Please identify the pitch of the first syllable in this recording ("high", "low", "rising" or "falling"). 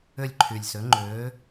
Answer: falling